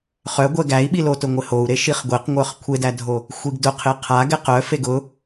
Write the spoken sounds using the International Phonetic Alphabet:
χ œ ɡʷ ɛ ɡ æ i̯ ɓ i l o t ʊ ŋʷ ɪ h o u̯ ɾ e ʃ i χ ɡʷ e q ŋʷ œ χ kʷʰ e d æ dʱ o | xʷ i ɡ d ʊ qʰ ɪ qʰ a ɡ ɛ q œ f e ɡ ʊ

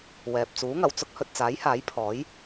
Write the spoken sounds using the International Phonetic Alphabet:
w ɛː˨ p̚ t͡s uː˨˥ ŋ ɐ˨˩ w t͡s ʊ˥ k̚ h ɵ˨ t̚ t͡s aː˨˥ j h aː˨˥ j pʰ ɔː˨˥ j

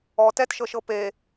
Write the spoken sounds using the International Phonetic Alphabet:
ɔ t ɛ t ʃ ɤ ʃ ɤ p e

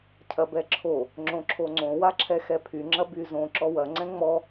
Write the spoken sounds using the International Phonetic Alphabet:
cʰ ɐ b ɛ ǁʰ o | ŋ͡ǁ õ ǁʰ o ŋ͡ǀ õ w a ǁʰ ɛ x ɛ pʰ y ŋ͡ǁ ɐ b y z õ ǁ ɔ w ɐ ŋ͡ǀ ɛ̃ ŋ͡m ɔ

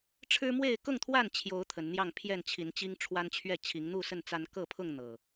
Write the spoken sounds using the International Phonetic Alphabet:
ʈ͡ʂʰ ɻ̩˦ m w e˥˨ ɪ̯ k ʊ˥˨ ŋ t̪ʰ w a˥˨ n t͡ɕʰ j o˨˦ ʊ̯ t̪ʰ ə˨˦ n n̪ j ɑ˥˨ ŋ pʰ j ɛ˥˨ n t͡ɕʰ i˨˦ n t͡ɕ i˦ ŋ ʈ͡ʂʰ w a˦ n t͡ɕʰ ɥ ɛ˥˨ t͡ɕʰ i˨˦ ŋ n̪ u˥˨ s ə˥˨ n t͡s a˦ n k ɤ˥˨ pʰ ʊ˥˨ ŋ n̪ ɤ˨˩

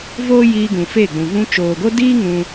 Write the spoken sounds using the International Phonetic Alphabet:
v oː˦ j iː˧ ɡ ũ˨ f e˦˨ ɡ͡b ũ˨ v ũ˧ t͡ʃ oː˨ ɡ o˦ d iː˦ ŋ ũ˧

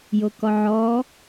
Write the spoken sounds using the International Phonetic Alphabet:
j o k ɔ ʕ ɔ

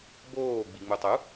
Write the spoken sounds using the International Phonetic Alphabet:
b oː ɡ͡b i ŋ͡m u tˤ u

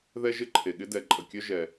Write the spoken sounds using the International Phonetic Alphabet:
ð ɛ˥ ʒ ɪ˥ ǃʰ e˩ ɠ ɪ˥ d ɛ˩ ǃʼ ə˩ kʲ œ˥ ʒ ɛ˩

